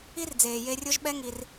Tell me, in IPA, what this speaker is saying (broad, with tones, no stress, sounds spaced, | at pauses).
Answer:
i˦ r d͡z eː˨ j e˧ rʲ o˦ ʒ ɓ ɛ˦ ŋ i˧ r